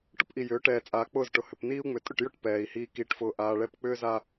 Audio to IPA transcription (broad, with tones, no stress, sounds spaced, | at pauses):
ʈ ʊ˦ p ʔ i˨ j ʏː˨˦ ʈ ɛː˨ t͡sʼ aː˨ k͡p ʊː˦˨ z ʈ ʊ˨ h ʏ˨ p n iː˦ u̯ ŋ͡m ʏ˨ tʼ ʏ˦˨ ʈ j ʊ˦˨ ʈ p ɛː˨ i̯ h iː˨ k iː˨ ʈ f ʊː˨ ʔ aː˨ ɭ ɛ˦˨ p k͡p ʏː˦ z a˦